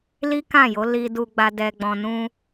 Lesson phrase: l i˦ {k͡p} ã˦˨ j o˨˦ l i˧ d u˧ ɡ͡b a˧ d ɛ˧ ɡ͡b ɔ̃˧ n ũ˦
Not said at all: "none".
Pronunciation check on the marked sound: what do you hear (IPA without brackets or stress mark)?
k